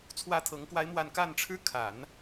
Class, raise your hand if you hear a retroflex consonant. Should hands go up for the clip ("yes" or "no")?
yes